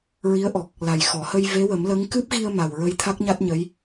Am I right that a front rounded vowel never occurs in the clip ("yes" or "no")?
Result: yes